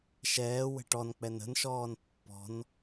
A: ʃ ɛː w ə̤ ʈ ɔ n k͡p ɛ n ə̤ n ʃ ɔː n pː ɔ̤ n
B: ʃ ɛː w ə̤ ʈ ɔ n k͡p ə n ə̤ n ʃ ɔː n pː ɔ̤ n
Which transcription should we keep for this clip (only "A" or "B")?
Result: A